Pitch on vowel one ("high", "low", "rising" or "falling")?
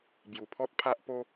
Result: low